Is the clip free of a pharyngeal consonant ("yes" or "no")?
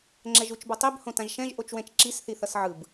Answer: no